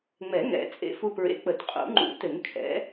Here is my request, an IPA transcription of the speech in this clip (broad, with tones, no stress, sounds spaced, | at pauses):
ŋ͡m ɛ˨˩˦ ŋ ɛ̰˨˩˦ t͡sʼ ḛ˧ f u˧ p ɹ ḛ˨˥ k͡p ə˨˩˦ t qʼ ṵ˨˩˦ ŋ͡ǃ ṵ˨˩˦ t ɘ˨˩˦ ŋ kʰ ɛ̰˨˥